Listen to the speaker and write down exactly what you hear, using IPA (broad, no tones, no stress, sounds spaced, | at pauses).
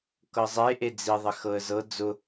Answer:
k ɤ zˤ e ʔ e d͡z i ðˤ ɪ x ɤ ə̯ z ɤ d͡z ʊ